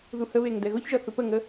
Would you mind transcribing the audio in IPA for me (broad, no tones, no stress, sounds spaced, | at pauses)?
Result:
ð u h ə β e ŋ d ɛ ɣ ʊ ç ʒ ʌ θ ʊ p ə ŋ ə